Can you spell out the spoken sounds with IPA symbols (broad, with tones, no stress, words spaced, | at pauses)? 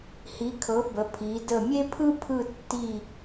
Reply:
hi˩˧kʰɤ˩˧ bə˩˧ pʰi˩˧ də˧˩mʲe˥pʰɯ˥ pʰɯ˥˧tːi˥˧